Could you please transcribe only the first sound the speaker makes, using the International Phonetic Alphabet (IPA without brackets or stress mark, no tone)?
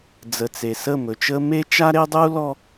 d͡z